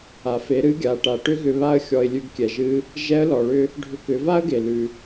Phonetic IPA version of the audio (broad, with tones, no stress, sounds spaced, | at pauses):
a˩ f e˩˧ ɾ ɨ˧˥ ɡʲ a˩˧ ʈ a˩ ʈ ʏ˥ ɣ ʏ˧ β a˥ ə̯ xʲ ɔ˧ ɪ̯ lʲ ʉ˧ ɡ kʲ ɛ˩ ʒ ɨ˧˥ | ʒ ɛ˧˥ ə̯ l ɔ˩ ɭ ʏ˥ | ɖʱ ʏ˧ k ʏ˩˧ v a˥ ə̯ ɡ e˩ l ʉ˩